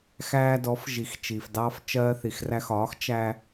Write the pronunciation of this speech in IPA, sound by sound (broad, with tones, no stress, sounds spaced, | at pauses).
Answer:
x æː˧ d ɔ˩˥ f ʒ i˩ x t͡ʃ iː˩ f d ɑː˧ f t͡ʃ ɜː˧ θ i˩ x r æ˧ x ɒː˩˥ x t͡ʃ æ˧